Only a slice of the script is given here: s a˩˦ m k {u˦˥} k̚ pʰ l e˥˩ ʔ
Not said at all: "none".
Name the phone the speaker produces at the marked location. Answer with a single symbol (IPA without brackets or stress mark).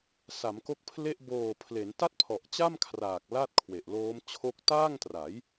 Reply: o˦˥